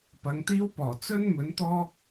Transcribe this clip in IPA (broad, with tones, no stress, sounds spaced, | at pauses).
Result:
p ɐ˨˧ ŋ t̪ iː˥ w p ɔː˨˩ t͡s ɵ˥ n m ɵ˨˥ n t̪ ɔː˥ k̚